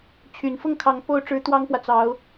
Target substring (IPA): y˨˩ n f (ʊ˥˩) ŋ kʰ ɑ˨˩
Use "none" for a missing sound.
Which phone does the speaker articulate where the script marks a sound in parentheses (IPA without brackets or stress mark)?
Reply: ʊ˥˩